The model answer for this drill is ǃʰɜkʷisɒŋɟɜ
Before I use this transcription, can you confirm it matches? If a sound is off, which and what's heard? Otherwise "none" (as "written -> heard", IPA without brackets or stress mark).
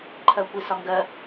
ɟ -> ɡ